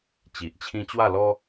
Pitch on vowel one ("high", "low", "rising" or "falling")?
low